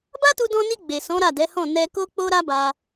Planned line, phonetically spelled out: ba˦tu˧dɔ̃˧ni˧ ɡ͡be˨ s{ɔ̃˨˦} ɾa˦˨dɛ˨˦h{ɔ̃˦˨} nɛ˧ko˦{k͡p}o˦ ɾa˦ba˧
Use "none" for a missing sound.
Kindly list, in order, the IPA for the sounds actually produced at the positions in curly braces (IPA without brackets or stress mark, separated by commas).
ɔ̃˨˦, ɔ̃˦˨, k͡p